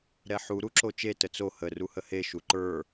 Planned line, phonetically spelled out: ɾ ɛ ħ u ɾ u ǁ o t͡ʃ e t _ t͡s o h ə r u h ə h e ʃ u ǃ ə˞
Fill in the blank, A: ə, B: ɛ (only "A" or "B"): A